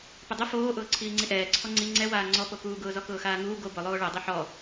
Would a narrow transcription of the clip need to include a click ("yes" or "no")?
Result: yes